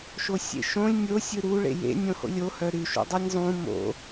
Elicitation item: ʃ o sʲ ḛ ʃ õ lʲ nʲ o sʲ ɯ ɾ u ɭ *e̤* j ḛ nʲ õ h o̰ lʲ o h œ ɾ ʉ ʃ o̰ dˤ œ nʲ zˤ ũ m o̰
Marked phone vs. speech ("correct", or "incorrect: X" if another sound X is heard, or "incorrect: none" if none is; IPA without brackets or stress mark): incorrect: ḛ